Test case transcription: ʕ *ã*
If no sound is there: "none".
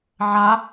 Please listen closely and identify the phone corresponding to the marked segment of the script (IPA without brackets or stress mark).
a